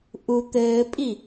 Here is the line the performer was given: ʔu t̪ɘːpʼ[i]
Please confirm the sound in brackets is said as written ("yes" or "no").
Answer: yes